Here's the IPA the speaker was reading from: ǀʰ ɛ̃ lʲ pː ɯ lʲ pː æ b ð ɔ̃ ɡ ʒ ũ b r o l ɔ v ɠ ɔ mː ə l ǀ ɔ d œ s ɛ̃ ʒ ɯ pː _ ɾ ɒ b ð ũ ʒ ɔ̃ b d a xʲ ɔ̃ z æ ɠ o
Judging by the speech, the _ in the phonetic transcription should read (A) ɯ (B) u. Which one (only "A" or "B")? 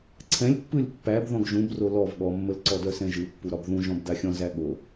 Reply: B